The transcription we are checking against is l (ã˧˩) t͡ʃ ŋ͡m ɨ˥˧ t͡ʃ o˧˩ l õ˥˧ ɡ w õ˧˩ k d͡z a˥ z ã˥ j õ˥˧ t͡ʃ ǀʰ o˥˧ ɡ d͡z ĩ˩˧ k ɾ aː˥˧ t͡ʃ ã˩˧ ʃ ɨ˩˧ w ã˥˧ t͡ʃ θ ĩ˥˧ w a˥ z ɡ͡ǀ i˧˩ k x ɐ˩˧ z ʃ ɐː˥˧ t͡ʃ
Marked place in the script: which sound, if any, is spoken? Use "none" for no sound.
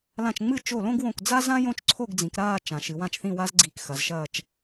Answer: ã˧˩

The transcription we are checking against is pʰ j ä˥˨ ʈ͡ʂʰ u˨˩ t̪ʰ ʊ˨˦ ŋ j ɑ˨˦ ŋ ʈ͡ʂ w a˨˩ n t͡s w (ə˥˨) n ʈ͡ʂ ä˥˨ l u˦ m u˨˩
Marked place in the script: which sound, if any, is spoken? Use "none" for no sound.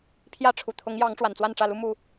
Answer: a˥˨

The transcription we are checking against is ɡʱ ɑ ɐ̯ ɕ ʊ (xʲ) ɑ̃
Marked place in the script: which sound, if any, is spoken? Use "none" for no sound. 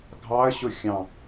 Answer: xʲ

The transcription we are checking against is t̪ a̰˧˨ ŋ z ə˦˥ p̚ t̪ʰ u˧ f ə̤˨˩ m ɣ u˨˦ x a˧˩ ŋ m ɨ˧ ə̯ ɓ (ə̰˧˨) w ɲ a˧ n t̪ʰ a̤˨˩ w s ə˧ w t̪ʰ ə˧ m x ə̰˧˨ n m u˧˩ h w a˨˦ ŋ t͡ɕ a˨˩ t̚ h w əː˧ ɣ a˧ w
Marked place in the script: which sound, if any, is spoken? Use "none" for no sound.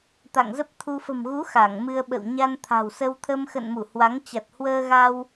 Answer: ə̰˧˨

